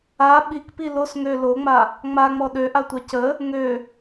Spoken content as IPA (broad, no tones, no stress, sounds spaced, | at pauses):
a ɓ i k p i l o s ŋ ø l o ŋ͡m a | ŋ͡m a ŋ͡m ɔ ɗ ø ʔ a tʷ a c ə | ŋ ø